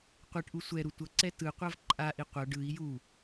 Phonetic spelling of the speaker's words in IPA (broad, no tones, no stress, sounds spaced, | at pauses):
qʷ ɛ ʈ ʔ u sʷ ɛ ɾ u tʷ ʌ ǀ ɛ t ɯ qʷ a v ǃʼ a ʔ i qʷ ʌ ɖ ɯ i̯ j u